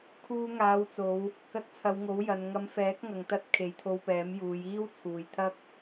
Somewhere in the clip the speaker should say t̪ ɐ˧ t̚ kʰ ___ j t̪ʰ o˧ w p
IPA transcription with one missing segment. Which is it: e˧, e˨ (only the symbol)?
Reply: e˨